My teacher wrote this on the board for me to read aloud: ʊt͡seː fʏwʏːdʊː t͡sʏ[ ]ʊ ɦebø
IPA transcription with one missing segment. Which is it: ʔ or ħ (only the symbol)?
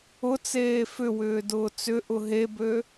ʔ